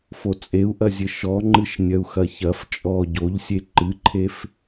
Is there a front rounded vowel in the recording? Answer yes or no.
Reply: no